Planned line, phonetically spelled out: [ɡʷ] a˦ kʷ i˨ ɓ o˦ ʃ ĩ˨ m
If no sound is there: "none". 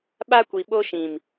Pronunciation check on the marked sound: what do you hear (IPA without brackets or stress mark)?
ɓ